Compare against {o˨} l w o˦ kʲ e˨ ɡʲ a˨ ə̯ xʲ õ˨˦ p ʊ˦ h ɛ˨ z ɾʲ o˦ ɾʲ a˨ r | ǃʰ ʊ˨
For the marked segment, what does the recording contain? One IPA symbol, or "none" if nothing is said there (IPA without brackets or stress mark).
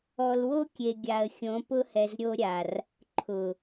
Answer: ɔ˨